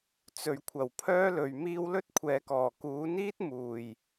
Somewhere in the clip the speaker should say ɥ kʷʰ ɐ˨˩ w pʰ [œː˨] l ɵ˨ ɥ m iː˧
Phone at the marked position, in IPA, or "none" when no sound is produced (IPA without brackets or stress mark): œː˥